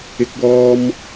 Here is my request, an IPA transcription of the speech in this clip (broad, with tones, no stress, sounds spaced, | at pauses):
ɪ˧ k̚ w ɔː˧ m